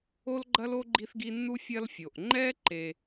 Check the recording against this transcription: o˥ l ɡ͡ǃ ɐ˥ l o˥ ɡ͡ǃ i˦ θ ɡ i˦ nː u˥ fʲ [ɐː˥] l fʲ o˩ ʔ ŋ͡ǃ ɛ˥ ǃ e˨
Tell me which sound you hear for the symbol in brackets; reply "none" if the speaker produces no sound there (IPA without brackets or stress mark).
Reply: ɐ˥